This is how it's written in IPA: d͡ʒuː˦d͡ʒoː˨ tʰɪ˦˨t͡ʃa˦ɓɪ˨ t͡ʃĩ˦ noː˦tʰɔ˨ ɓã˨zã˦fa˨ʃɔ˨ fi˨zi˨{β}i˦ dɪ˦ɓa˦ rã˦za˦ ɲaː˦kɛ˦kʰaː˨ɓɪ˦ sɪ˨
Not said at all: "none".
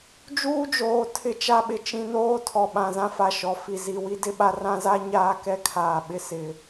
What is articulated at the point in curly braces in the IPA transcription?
w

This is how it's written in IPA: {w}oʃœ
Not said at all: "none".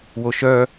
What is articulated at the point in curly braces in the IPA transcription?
w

